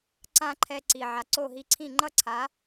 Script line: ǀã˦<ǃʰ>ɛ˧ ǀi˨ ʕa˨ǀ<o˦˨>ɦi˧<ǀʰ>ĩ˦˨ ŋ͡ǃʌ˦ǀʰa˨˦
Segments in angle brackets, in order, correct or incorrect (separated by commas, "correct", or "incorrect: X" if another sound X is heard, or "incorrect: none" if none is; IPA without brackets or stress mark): correct, correct, correct